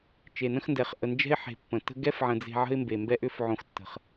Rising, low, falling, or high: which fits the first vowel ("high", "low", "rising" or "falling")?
low